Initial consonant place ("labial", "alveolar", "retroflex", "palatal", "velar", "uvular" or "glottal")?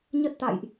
palatal